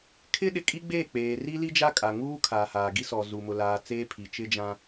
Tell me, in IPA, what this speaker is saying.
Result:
kʰ ɪ˦ ɗ ɪ˨ kʼ i˦ ɡ͡b eː˦˨ k͡p eː˨ r i˦ l i˦ d͡ʒ a˦ kʼ a˨ ŋ uː˦ kʰ aː˨ h aː˨ ɡ i˦ s ɔ˨ z u˨ m ʊ˨ l aː˨ t͡s eː˦ pʰ i˨ t͡ʃ ɪ˦ d͡ʒ ã˦

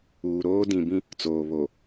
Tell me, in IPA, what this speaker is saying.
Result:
uː˨ ɾ oː˦ d ĩ˨ b ĩ˦ | t͡s oː˨ β o˨

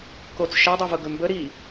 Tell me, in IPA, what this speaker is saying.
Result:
k o t͡s ʃ æ dˤ ɛ v ɤ ɡ ɵ m b ə ɾ i

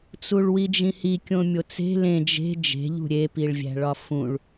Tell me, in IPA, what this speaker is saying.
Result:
t͡s u ɭ w i d͡ʒ ĩ h i kʲ õ mʲ o t͡s e̤ l ẽ d͡ʒ e̤ d͡ʒ e̤ ʎ ṳ ɾʲ e p i ɭ vʲ æ̤ ɭ ɒ f ũ ɭ

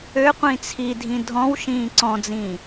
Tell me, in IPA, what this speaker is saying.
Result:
ø qʷ ĩ t͡sʰ i dʱ ĩ dʱ ɔ̃ w ʃ ĩː ǀ ɔ̃ d͡z ĩː

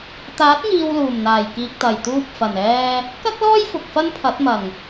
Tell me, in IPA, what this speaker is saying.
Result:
t̪ aː˨˥ t̚ ŋ iː˨ w l uː˨˩ m n̪ aː˨˩ j k iː˨ k̚ t̪ ɐ˨˩ j t̪ uː˧ p̚ f ɐ˨˩ n ɛː˧ | k ɐ˥ k̚ l ɔː˥ j f ʊ˨ k̚ f ɐ˥ n pʰ ɐ˨˥ t̚ m ɐ˨˩ ŋ

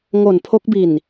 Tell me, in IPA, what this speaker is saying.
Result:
ŋ o˨˩ n pʰ o˦˥ k̚ b i˨˩ n

